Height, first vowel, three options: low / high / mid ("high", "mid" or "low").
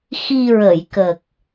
high